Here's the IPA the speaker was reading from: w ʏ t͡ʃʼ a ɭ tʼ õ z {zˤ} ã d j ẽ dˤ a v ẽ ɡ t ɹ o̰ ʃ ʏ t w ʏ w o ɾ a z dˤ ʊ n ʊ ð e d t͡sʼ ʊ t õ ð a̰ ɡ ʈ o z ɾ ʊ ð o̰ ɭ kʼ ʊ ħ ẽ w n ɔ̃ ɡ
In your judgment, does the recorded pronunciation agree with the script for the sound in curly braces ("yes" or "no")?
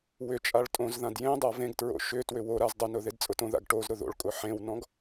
no